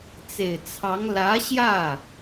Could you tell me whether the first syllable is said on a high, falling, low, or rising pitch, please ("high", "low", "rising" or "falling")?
low